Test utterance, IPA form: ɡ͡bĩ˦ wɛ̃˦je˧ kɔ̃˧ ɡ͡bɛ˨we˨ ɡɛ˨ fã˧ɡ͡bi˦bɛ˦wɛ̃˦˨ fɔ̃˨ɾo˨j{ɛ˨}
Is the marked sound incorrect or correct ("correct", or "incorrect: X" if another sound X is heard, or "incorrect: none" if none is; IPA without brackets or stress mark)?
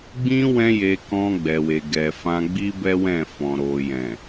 incorrect: ɛ̃˨